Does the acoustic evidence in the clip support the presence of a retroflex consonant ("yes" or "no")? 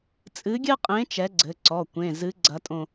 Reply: no